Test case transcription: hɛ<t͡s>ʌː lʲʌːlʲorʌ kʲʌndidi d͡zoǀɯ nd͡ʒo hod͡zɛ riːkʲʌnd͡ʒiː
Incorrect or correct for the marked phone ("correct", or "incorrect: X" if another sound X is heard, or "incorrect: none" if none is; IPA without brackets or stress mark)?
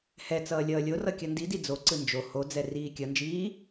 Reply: correct